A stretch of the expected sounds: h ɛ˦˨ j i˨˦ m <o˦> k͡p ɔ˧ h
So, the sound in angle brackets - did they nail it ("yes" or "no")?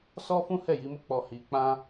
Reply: yes